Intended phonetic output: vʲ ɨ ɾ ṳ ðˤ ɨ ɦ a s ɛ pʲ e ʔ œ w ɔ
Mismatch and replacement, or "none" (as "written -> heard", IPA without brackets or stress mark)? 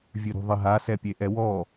œ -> ɛ